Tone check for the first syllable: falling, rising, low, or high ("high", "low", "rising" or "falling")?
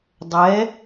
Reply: rising